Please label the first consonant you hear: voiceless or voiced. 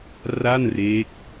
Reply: voiced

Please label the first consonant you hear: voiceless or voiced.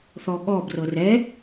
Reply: voiceless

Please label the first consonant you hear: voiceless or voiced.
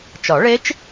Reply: voiceless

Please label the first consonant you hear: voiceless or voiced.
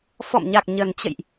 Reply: voiceless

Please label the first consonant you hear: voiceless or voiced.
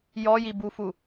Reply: voiced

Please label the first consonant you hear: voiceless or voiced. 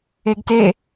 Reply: voiced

